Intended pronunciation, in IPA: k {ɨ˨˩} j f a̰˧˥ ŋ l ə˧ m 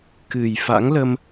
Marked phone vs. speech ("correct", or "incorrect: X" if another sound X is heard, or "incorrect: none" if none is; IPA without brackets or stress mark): correct